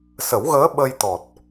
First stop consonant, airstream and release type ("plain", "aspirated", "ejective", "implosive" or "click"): implosive